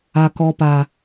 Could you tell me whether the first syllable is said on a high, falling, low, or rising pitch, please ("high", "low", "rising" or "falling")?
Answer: low